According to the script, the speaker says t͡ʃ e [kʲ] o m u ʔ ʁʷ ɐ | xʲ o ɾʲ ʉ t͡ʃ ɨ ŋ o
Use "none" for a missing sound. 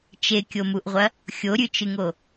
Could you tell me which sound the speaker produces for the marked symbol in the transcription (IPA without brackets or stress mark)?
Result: kʲ